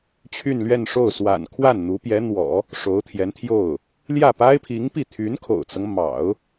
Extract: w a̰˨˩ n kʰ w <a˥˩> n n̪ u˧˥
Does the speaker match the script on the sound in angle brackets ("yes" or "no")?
yes